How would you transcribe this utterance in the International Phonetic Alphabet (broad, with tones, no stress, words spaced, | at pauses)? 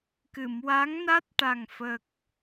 kɨ˨˩˨mwa˧˥ŋna˦˥t̚ʈa˨˩ŋ fə˨˩k̚